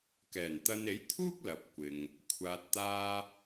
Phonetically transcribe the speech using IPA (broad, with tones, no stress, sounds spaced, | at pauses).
k ɛː˨˩ n t̪ ɐ˧ n e˨˥ j t̪ʰ uː˥ k̚ l ɐ˨ p̚ kʷ ɪ˨ ŋ | kʷʰ aː˨ t̚ t̪ aː˧